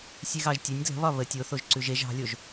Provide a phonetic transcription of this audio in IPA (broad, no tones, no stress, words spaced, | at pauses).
sʲeɣɑʒtʲɛnʲ dlə̤βɒ βə tʲoθoʒ ǀʉʒeʒ ɑ̤lʲoʒ